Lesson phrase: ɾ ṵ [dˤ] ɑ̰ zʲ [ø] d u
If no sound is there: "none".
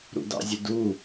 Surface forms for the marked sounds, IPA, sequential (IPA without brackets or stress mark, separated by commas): d, ø